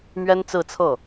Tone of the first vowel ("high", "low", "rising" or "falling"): high